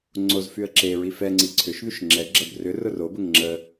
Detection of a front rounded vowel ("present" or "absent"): present